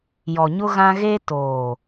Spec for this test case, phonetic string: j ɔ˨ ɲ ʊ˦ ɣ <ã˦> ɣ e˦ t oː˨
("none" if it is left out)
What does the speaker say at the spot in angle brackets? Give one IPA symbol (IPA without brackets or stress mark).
ã˦